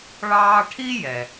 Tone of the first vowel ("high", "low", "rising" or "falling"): high